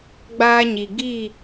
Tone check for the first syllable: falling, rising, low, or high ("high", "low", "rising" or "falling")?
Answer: high